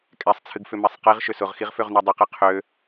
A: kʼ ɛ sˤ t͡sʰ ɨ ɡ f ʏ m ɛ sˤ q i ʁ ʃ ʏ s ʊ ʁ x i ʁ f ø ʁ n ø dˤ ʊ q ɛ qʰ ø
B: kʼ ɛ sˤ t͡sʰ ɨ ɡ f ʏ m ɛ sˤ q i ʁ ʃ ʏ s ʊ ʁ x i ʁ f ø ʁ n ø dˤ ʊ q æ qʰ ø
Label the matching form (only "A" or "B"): A